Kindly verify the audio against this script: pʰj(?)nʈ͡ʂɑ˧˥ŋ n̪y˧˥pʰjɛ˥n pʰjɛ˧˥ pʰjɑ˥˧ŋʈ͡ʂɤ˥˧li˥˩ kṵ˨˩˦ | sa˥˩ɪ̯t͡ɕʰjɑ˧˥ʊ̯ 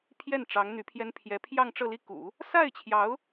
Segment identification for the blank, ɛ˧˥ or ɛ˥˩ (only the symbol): ɛ˥˩